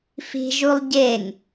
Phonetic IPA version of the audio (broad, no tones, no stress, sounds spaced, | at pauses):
f i̤ ʒ u lˠ ɟ e ŋ